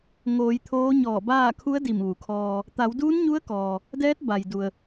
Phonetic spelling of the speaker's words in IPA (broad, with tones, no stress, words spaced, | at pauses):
ŋoː˩˧j t̪ʰoː˧˥ɲɔː˧˩baː˥˨ kʰu˧˥ə̯ di˧˩mʋu˩kʰɔː˧ | t̪a˩˧wduː˧˥nɲu˧˥ə̯kɔː˩ | dɛː˧˥t̚ ba˩j du˩ə̯